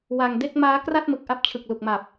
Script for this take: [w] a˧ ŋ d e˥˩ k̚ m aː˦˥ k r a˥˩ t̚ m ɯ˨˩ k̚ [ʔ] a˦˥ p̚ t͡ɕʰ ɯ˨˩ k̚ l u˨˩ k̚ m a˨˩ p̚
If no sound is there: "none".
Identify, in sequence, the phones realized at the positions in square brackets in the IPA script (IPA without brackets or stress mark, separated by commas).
w, ʔ